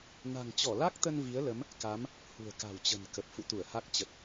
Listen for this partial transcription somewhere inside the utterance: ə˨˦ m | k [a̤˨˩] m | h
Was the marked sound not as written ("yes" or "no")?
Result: yes